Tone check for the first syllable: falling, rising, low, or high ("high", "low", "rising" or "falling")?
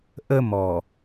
high